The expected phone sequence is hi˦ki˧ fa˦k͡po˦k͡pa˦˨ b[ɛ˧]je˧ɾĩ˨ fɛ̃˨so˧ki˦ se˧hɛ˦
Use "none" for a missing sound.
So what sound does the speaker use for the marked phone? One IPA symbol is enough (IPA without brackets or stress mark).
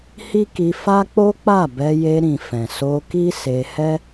ɛ˧